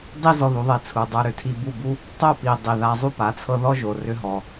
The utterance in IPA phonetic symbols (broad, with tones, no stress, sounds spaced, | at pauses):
dˤ i˦ z ɔ˧ ð u˨˦ ðˤ e˧ t͡sʰ u˨ dˤ ə˞˧ ɾ ʏ˨ tʰ i˧ b u˦˨ b u˦ | tˤ o˦˨ p i˨ dˤ i˨ ð a˧ zˤ u˦ p a˨˦ t͡sʰ ɤ˧ ð ɔ˦ ʒ o˨ r ʏ˧ ɦ ɔ˨